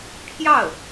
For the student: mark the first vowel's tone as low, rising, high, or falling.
falling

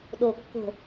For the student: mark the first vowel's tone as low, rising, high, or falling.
low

